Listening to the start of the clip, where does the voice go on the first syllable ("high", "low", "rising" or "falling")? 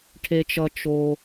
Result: low